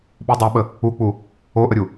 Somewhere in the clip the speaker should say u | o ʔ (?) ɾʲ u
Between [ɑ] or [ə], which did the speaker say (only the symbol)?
ə